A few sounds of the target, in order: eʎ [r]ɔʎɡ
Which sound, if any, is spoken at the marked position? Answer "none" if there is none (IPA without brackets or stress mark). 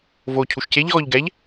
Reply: ɣ